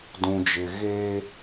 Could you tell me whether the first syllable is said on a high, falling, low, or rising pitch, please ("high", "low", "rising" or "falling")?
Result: low